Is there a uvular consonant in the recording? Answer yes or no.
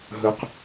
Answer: yes